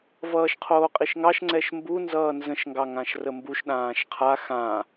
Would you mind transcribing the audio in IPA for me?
v ʌː ʃ qʰ oː qʼ i ʃ ŋ ɑ ʃ ŋ͡ǀ ɛ ʃ m b u n z ʌː n z ə̃ ʃ ŋ ɡ ɑ ŋ ã ʃ r ə m b u ʃ ɗ ãː ʃ qʰ a x ã

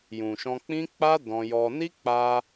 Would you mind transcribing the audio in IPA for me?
j ũ˨ ʃ ɔ̃˧ k͡p ĩ˦ k͡p a˦ d ɔ̃˧ j ɔ˧ n i˦ k͡p a˧

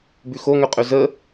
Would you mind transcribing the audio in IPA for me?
b ʉ x o ŋ ø qʼ ø z ə

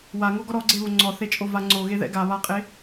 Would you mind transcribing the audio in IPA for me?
w a ŋ o ɡ ɔ ɾ ɔ ɡ͡ǀ e β o ŋ͡ǀ ɔ θ e t͡ʃʼ o v a ŋ͡ǀ o ɣ e ð ɛ̰ ɡ a β a qʼ e

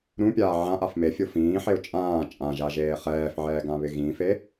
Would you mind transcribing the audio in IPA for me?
ɾ ũ pʲ aː ʕ ã ʔ a f m e fʲ o f ĩː ħ e ʊ̯ t͡ʃʼ ãː t͡ʃʼ ã ʒ a ʒ eː χ ɛː f ʕ ɛː ɡ ã β ɪ ɣ ĩ f e

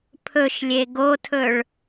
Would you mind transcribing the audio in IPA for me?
pʰ ɵ ʃ lʲ e ɡ o tʰ ɵ ɭ

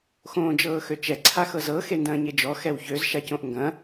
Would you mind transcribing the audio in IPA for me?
x õː d͡ʒ ɤː x ø t͡ʃ ɛ ǀʰ a x ɤ z ɤ x e n d ɐ̃ː ɲ e d͡ʒ ɔ x ɛ w ç ø z ʃ a c õ ʔ ŋ ɡ ɐ̃

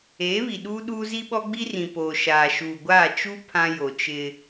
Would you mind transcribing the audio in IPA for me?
eː˨˦ β i˨ ɗ uː˦ ɗ uː˦ z i˦ ɓ ɔ˦ ɡ͡b i˦ r ĩ˨ p oː˨ ʃ aː˨ ʃ uː˨ ɡʷ aː˦˨ t͡ʃ u˦ pʰ ã˦ j o˨ t͡ʃ ɪ˦

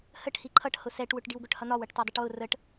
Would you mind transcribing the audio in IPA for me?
h ə ʈ h i ǃʰ ʌ ʈ h ʊ s ɛ ʈ w ʊ ʈ ɖ i w ɡ ʊ ʈ h ʌ n̪ ɒ w ʌ ʈ t ɒ dˤ ə ʈ w ʊ r ə ʈ

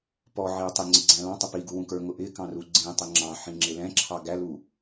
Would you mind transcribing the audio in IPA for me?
p ɔ ʕ i u̯ tˤ ɪ ŋ͡ǀ ɪ ɡ͡ǀ æ̃ l ɑ̃ tˤ ʊ p i ɡ u w ũ k ə˞ ŋ ʊ ʔ ɪ k ɑ̃ r u ɡ͡ǀ ĩ tˤ ə ŋ͡ǁ ɑ̃ ħ ĩ ŋ͡ǁ ɪ l ɛ̃ ǁʰ ɑ ɡ æ l u

